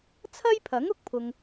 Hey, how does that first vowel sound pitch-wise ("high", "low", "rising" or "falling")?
high